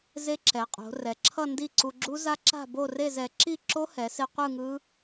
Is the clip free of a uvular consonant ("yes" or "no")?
no